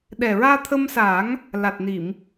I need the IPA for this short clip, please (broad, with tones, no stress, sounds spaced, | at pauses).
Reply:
ɗ ɛ˨˩ ɹ aː˧ t̪ʰ ə˧ m s aː˨˩˦ ŋ | l a˨˩ t̚ n i˨˩˨ m